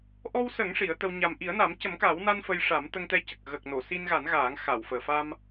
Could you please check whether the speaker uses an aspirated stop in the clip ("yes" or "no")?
no